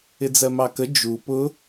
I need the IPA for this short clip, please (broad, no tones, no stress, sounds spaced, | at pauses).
ɪ d͡z ɜ m ɑ k ə d͡ʒ u p ʊ